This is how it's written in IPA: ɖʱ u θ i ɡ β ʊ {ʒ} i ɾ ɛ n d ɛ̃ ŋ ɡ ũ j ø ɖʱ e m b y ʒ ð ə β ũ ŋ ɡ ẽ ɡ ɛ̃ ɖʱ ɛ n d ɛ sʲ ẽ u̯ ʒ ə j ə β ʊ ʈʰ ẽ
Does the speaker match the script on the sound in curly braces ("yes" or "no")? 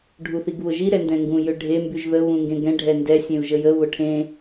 yes